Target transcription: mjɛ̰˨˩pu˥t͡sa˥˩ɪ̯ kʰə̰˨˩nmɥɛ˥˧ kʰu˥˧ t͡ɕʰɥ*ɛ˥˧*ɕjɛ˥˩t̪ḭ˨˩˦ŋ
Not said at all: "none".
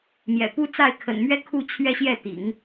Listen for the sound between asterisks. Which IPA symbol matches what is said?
ɛ˥˧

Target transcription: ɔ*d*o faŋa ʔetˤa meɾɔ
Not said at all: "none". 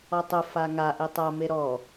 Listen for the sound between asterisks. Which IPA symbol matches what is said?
tˤ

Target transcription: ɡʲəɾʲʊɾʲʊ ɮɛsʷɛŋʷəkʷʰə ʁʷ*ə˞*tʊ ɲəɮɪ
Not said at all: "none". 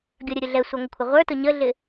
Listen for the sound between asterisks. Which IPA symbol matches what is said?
ə˞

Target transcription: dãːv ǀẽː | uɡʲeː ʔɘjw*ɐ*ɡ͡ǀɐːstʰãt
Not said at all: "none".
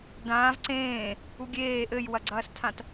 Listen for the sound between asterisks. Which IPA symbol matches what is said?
ɐ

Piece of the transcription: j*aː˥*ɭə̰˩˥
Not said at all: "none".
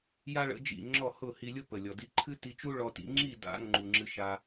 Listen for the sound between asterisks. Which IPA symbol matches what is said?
a˥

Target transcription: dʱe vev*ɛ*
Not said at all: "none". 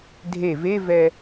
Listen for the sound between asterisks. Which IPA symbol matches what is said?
ɛ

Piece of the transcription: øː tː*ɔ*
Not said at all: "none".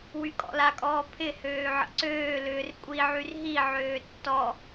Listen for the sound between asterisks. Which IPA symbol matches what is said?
ɔ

